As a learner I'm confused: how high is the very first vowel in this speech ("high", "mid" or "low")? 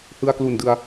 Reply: high